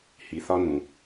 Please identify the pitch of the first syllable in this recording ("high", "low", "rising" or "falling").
low